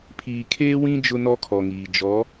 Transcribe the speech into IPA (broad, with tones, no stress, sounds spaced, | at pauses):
pʰ iː˨ kʰ eː˦ w ĩ˦ d͡ʒ ʊ˦ n ɔ˦ kʰ ɔ˨ ŋ iː˨ d͡ʒ ɔ˨˦